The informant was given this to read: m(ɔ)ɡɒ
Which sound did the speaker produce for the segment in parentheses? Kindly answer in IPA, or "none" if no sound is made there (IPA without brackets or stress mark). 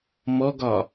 ɔ